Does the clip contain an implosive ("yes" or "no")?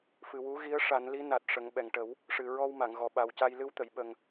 yes